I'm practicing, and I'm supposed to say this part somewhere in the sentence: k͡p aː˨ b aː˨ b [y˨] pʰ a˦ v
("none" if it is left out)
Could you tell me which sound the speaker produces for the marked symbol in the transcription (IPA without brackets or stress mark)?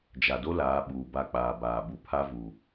u˨